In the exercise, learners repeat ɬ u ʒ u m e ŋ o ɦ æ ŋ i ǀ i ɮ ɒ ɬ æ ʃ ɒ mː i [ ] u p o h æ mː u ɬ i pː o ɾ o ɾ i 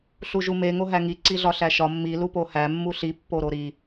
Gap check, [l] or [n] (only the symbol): l